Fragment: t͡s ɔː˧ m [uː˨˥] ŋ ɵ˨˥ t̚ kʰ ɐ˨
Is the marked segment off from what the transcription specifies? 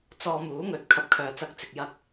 no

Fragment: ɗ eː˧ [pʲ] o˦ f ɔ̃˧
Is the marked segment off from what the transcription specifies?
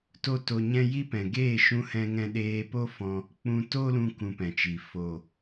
yes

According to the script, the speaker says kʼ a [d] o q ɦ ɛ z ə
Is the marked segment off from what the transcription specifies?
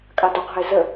no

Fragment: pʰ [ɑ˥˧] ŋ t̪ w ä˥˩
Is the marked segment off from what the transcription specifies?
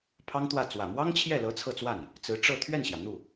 yes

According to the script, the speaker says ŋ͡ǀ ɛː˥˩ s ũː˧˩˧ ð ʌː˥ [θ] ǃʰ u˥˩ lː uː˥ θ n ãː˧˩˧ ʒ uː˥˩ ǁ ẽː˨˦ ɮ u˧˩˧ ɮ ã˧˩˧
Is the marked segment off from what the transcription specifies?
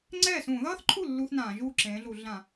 no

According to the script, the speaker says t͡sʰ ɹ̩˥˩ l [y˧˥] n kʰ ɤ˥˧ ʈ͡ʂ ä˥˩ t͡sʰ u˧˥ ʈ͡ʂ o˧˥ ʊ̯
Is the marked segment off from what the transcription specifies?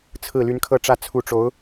no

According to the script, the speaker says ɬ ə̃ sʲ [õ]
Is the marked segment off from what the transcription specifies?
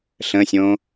no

